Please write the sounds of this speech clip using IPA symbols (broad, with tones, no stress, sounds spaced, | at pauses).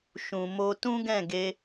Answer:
ʃ ũ˨ m o˧ t ũ˦ ɡ ɛ̃˦˨ ɡ e˧